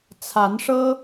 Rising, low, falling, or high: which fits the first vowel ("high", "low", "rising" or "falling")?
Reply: rising